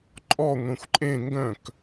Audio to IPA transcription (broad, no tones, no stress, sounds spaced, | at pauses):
ǃʼ ɔ ŋʷ ẽ xʷ ǃʼ ẽ ŋ ɡ œ̃ k